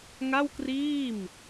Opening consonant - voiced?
yes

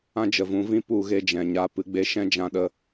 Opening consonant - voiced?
yes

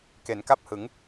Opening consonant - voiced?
no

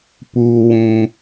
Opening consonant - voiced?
no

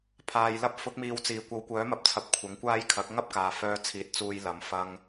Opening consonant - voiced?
no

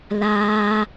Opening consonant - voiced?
yes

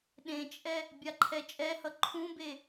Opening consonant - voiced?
yes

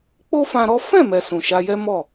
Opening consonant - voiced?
no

